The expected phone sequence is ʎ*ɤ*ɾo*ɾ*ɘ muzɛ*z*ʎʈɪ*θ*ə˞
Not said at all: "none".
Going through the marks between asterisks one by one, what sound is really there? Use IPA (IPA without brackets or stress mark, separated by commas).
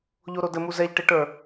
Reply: o, d, none, ʈ